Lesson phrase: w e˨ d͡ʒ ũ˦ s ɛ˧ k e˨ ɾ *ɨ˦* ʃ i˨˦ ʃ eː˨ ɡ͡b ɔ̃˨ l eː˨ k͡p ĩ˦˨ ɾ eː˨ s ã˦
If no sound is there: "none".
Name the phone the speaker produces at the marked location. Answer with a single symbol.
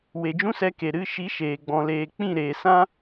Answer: ɨ˨˦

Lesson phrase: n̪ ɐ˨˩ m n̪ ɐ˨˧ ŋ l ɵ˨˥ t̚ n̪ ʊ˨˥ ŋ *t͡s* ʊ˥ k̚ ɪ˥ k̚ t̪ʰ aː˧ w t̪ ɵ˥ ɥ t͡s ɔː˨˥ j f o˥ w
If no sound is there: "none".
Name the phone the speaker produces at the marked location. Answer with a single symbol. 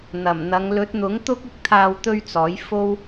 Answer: t̪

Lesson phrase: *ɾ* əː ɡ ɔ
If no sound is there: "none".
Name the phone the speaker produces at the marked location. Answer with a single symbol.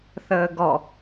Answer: θ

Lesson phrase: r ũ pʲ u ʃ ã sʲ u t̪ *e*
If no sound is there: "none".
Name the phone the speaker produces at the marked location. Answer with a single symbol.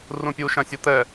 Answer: ɛ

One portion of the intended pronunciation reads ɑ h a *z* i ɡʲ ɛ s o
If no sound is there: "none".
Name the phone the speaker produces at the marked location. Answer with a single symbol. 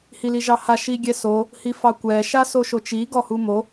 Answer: ʃ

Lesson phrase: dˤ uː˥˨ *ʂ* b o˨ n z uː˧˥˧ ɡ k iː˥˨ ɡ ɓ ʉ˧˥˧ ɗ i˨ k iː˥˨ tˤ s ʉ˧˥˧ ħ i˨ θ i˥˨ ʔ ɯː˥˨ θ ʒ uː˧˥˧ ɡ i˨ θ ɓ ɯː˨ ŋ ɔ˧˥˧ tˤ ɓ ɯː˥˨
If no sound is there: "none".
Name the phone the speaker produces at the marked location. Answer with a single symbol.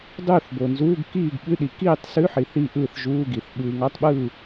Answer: θ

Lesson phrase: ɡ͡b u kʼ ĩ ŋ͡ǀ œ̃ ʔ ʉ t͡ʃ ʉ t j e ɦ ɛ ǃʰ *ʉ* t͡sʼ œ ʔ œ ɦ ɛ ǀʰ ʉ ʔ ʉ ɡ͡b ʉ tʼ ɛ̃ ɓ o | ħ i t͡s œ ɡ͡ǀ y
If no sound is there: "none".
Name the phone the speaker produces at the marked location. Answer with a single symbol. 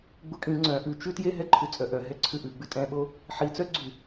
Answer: ʉ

